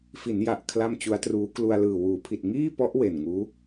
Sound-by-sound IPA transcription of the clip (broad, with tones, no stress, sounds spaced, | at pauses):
f i˩˦ n j a˨˩ ʔ kʰ l a˥˩ m t͡ɕ u˦˥ a̯ t r uː˦˥ k l u˧ a̯ l ɯː˨˩ w uː˩˦ pʰ i˨˩ t̚ ŋ iː˥˩ p ɔ˦˥ ʔ w e˨˩ n ŋ uː˦˥